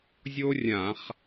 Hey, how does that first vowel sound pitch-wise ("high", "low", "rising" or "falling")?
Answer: high